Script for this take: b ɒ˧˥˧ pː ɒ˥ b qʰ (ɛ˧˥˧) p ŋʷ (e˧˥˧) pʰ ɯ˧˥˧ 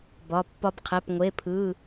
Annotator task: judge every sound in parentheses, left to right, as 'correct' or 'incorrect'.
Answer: incorrect, correct

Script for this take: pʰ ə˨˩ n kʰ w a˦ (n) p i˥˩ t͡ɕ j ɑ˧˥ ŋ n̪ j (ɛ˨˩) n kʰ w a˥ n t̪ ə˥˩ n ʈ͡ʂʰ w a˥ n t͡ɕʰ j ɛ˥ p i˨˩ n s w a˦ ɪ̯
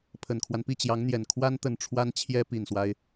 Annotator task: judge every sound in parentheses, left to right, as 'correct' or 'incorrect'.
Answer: correct, correct

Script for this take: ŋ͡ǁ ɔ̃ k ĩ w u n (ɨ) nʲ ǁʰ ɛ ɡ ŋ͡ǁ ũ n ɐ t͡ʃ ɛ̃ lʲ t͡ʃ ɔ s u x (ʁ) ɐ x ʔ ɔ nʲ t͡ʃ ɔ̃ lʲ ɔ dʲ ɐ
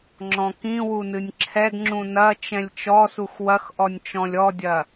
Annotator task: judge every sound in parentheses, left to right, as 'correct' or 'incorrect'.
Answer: correct, incorrect

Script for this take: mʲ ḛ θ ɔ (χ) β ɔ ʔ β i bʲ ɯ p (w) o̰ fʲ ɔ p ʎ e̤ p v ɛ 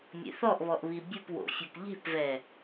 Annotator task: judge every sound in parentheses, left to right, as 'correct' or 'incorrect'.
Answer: incorrect, correct

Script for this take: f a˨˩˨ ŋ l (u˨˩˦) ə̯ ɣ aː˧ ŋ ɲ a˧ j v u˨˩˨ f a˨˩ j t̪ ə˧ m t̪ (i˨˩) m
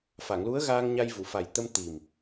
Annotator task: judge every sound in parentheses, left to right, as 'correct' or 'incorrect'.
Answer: incorrect, correct

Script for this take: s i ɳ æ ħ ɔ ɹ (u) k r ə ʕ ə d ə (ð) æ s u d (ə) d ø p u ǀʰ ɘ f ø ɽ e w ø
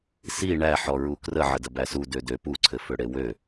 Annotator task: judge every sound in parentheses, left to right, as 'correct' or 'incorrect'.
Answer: correct, incorrect, incorrect

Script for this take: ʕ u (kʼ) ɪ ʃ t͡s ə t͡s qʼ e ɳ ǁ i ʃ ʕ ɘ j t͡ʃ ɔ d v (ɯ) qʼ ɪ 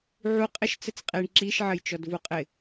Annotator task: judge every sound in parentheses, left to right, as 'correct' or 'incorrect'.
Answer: incorrect, incorrect

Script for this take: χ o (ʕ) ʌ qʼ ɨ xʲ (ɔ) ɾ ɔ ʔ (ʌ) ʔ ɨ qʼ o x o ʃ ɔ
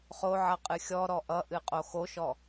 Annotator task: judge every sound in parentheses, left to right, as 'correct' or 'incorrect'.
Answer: correct, correct, correct

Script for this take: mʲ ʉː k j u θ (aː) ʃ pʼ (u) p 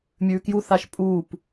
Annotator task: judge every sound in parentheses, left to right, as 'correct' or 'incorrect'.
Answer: incorrect, incorrect

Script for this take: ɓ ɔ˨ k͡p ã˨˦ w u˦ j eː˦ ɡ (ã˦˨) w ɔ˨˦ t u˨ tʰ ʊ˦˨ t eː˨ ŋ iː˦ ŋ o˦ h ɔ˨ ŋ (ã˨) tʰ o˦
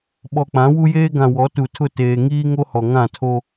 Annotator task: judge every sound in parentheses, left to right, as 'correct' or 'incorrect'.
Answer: incorrect, incorrect

